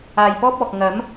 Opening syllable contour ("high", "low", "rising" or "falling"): low